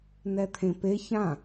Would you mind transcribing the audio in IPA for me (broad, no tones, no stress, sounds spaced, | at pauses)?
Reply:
n ɛ t̪ʰ ẽ p e ç ã